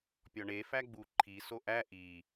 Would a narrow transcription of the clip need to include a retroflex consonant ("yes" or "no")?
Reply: yes